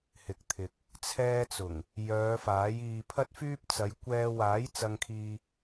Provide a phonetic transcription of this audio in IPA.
hɪ˨k̚t̪ʰɪ˨k̚ | t͡sʰɛː˧t͡sʊ˨˩ŋ | jœː˨˧ faː˨˥jiː˧pʰɐ˥t̚fyː˥p̚ t͡sɐ˨˧jkʷɛː˧ waː˨˥j t͡sɐ˧ŋkʰiː˧

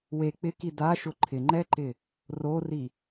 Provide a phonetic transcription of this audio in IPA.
we k͡pɪki daʃʊ ǃʰɪŋ͡ǃɛǃɪ | rori

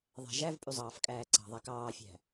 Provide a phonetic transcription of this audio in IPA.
ðˤæ̤ʒævpʼʉ zˤɑːfkʼæːǀɑ̤ðˤæk ɑːfʲæ̤

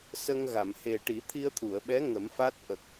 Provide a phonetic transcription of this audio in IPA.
sə˧ŋɣa˨˩˨m he˨˩ ʈi˨˩˦t̪ʰi˧ə̯t̪ʰu˨˩˨ə̯ɓɛ˧˥ ŋə˨˩˦mfa˦˥t̚ ʔə˨˩k̚

